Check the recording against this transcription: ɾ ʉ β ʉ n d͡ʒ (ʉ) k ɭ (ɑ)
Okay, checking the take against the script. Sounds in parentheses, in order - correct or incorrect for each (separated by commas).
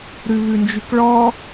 correct, incorrect